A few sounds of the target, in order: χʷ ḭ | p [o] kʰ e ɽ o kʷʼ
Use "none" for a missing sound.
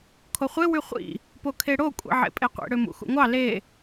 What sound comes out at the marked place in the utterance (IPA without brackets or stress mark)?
o